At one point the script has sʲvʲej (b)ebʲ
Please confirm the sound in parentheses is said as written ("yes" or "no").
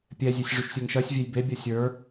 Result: yes